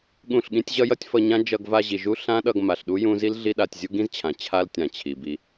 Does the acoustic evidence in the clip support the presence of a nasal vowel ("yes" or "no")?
yes